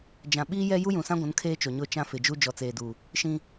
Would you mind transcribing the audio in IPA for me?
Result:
d͡ʒ ã˨ ɓ iː˦ j ɛ˦ j u˦ j ũ˨ s ã˦ ɡʷ ũ˨˦ n kʰ eː˦ t͡ʃ o˨ ɲ ʊ˦˨ t͡ʃ ã˦ f ɪ˨ d͡ʒ u˦ d͡ʒ ɔ˨ t͡s eː˨ d u˨ | ʃ ĩ˦

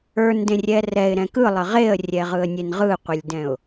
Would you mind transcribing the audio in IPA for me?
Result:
ə˞ n d ẽ rʲ ɛ r ɛ ɪ̯ ɾ ɛ̃ k ɯ lˠ ə ʁ e ə̯ rʲ ɛ ʁ ɯ ə̯ nʲ e n ʁ ɯ qʷ ə lʲ d ɛ̃ ʊ̯

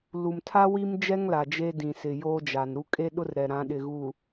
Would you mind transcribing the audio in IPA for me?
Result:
l u˨ m tʰ a˦ w i˦ m d͡ʒ ɛ˦ ŋ l a˨ d͡ʒ e˦ d ĩ˨ s ɪ˨ j oː˦ d͡ʒ a˨ n ɾ u˦ kʼ e˦ ɗ ʊ˦ r ɾ ɛ˨ ɾ ã˨˦ ɗ ɪ˨ ɣ uː˨

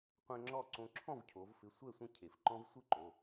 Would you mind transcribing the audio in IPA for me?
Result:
qʷ ɛ̃˦ ŋ͡ǁ ɔ˥˨ ǀ õ˦ ǁʰ ɔ̃˥˨ v cʰ o˩˧ v f ɪ˩˧˩ sʷ ɛ˥˨ sʷ ə̃˥˨ cʰ e˩ f ǃ ɔ̃˦ v sʷ ɨ˥˨ ǃ o˩˧˩

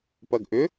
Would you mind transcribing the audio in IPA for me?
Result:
p ɐ ɡ ʔ ʏ

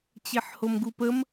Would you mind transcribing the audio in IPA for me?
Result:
t͡ɕ e ħ h o m ɡ u p ə m

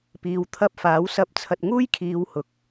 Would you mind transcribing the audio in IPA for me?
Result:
p iː˨ w t̪ʰ ɐ˧ p̚ f aː˨˥ w s ɐ˧ p̚ t͡sʰ ɐ˧ t̚ ŋ uː˥ j kʰ iː˨˧ w h ʊ˨ k̚

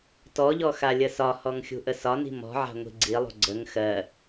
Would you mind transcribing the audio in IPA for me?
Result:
t ɔ ʎ ɔ x a lʲ ə s ɒ h ɔ ŋ xʲ ṳ ʔ ə s ɒ n i̤ m ɔ̤ ʕ a̤ ŋʷ i̤ ɡ͡ǀ i lˠ ṳ ɡ͡ǀ ə ŋ x ɜ

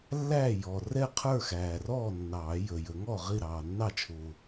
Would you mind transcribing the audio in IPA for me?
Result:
lː æː˥˩ j ɔ˨˩ r ɛ˥˩ qʰ ə˞˥˩ x æː˨˩ r ɔː˥˩ nː ɑː˨˩˦ j ə˨˩ j ə˨˩˦ ŋ ɔ˥˩ ʁ i˥˩ ɾ ɑː˨˩ nː ɑ˥˩ t͡ʃʰ ʊː˨˩

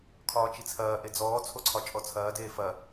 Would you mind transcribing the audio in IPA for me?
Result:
kʰ ɒː t͡ʃ i t͡sʰ ɐː ʔ e d͡z ɔː t͡sʰ o ǀʰ ɒ t͡ʃʼ ɔ t͡sʰ ɐː d eː f ɐ

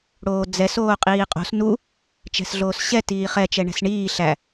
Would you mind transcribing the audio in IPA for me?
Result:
ɽ oː d͡z ɛ s oː qʼ iː qʼ o̤ s n u | t͡ʃ ɛ̤ s ɮ oː s ɕ ɛ t iː χ ɛ t͡ʃ ɛ ɳ ɛ̤ s ɳ iː ɬ æ

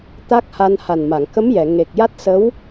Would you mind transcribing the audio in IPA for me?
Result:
t̪ a˦˥ k̚ h a˧ n h a˨˩ n m a˨˩˨ ŋ k ə˧˥ m j ɛ˨˩˨ ŋ e˨˩ k̚ j a˦˥ t̚ s ə˧˥ w

